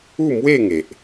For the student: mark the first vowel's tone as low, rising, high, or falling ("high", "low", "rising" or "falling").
falling